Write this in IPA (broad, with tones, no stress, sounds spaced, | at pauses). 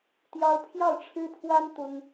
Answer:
t̪ j ɑ˥ ʊ̯ pʰ j ɑ˥˩ ʊ̯ ʈ͡ʂʰ ɻ̩˥ pʰ w a˥ n t̪ ʊ˥ ŋ